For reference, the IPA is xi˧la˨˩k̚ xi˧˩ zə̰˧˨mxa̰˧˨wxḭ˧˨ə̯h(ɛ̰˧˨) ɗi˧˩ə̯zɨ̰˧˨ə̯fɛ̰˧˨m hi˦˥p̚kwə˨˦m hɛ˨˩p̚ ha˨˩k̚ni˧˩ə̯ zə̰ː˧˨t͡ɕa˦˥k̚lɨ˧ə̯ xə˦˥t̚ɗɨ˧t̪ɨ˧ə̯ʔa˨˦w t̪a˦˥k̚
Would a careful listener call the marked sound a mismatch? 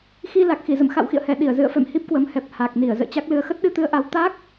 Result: yes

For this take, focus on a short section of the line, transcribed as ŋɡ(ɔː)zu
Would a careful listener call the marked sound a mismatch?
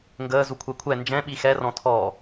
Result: yes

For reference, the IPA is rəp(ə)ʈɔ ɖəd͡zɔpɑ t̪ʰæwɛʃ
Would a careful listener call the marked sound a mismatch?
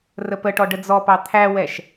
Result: no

